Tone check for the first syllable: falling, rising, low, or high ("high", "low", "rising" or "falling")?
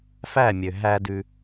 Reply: falling